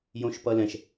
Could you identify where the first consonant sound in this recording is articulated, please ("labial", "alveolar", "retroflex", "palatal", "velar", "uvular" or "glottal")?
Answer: palatal